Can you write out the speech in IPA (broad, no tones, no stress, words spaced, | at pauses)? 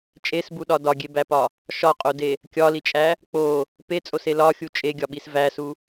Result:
t͡ʃʼesbuɗɒ dɒɡʲebæpɒ | ʃɒqʼode | kʲɒlit͡ʃʼæ | k͡po | pet͡sʼose lɒxʲu t͡ʃʼeɡʲɒɓis væsu